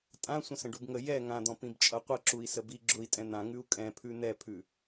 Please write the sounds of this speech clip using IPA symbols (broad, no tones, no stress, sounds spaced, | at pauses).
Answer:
tʼ ã sʷ ə̃ s ə̃ ɖ u b ŋ ə j ɛ ŋ ã d̪ ɔ̃ p ĩ b t͡ʃʼ ʌ qʷ ʌ ǁ u i̯ s ə b i ɡ͡ǁ ʊ i̯ tʼ ɛ̃ n̪ ã ŋ ʉ u̯ kʼ ɛ̃ pʰ ʉ n̪ ɛ pʰ ʉ